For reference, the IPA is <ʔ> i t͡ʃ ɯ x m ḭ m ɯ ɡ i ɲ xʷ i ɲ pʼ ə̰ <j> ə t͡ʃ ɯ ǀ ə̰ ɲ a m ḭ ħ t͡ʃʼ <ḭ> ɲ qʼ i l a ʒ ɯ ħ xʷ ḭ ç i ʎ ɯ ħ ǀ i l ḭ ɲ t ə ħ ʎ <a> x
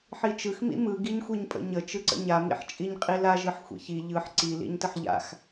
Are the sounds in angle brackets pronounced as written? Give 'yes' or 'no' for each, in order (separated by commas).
no, no, no, no